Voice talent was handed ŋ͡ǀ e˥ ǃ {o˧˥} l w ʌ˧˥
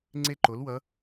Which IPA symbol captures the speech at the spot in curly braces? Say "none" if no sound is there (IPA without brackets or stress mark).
o˧˥